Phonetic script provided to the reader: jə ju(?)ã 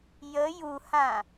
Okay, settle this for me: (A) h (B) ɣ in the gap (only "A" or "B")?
A